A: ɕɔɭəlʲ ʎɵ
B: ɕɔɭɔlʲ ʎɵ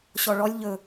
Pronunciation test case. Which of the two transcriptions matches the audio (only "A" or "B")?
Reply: B